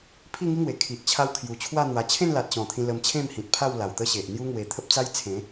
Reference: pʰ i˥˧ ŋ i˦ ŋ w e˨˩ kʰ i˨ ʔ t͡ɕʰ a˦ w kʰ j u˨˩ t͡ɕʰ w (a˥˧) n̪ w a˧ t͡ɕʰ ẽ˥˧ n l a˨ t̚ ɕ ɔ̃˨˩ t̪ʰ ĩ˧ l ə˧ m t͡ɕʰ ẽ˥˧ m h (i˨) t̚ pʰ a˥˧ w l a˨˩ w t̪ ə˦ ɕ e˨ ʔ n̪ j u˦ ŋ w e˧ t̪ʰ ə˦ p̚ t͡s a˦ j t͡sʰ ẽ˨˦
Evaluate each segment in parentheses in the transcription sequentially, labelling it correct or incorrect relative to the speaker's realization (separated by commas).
correct, incorrect